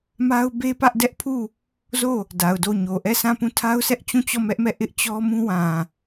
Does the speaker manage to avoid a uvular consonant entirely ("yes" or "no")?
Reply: yes